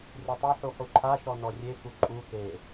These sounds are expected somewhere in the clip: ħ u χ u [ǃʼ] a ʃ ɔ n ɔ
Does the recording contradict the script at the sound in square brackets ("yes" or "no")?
yes